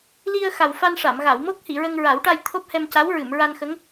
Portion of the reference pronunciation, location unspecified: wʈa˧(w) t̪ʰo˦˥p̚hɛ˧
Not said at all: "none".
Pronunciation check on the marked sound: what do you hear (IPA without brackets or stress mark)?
j